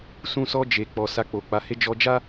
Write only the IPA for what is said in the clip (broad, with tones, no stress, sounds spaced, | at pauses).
s ũ˧ s ɔ˧ d͡ʒ e˨ k͡p ɔ˨ s a˧ k͡p o˨ k͡p a˨˦ h e˦ d͡ʒ ɔ˧ d͡ʒ a˦